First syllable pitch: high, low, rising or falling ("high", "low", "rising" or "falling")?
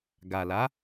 low